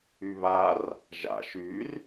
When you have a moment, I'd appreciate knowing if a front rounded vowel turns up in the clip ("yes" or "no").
yes